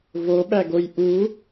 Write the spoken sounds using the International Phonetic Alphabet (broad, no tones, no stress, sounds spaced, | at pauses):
v o ɓ æ ɡ o j ʔ u